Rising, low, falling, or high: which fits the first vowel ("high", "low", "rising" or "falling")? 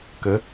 rising